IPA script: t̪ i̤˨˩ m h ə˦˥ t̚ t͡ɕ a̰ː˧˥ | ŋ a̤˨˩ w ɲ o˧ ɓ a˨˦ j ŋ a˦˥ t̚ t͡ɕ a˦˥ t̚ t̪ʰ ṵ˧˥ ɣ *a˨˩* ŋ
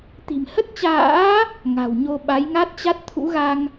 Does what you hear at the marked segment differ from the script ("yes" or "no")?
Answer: yes